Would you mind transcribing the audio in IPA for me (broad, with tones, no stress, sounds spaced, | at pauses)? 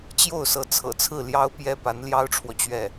t͡ɕ j o˥˩ ʊ̯ s ɤ˧˥ t͡sʰ ɤ̰˨˩ t͡sʰ ɹ̩˥˩ l j ɑ˥ ʊ̯ p j ɛ˥ p a˧˥ n l j ɑ˥ ʊ̯ ʈ͡ʂʰ w ɔ˨ t͡ɕ ɥ ɛ˥˩